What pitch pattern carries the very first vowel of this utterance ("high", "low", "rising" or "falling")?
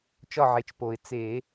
falling